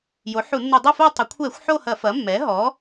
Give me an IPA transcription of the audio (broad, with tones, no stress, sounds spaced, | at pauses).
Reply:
j o˩˥ ħ u˧˩˧ nː u˧˩˧ dˤ ɐ˥˧ f o˥˧ tˤ ɐ˩˧ kʷʰ ɛ˧˩˧ xʷ ħ o˥˧ h ɐ˧˩˧ f ɐ˩˥ mː ɛ˩˥ ɦ ɔ˩˥